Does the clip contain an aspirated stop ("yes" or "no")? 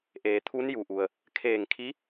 yes